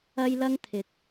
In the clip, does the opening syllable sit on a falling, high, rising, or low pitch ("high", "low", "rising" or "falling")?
high